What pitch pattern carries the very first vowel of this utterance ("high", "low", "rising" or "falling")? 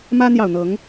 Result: high